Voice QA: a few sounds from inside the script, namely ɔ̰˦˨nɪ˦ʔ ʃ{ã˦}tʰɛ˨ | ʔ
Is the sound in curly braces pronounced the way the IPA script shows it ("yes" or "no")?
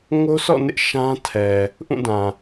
yes